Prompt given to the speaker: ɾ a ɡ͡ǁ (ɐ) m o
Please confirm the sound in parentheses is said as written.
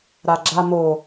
no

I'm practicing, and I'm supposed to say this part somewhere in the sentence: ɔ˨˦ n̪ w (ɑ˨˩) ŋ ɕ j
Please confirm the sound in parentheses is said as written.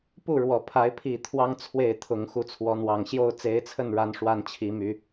yes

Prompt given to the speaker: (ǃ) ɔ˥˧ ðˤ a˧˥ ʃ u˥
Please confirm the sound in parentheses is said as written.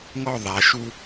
no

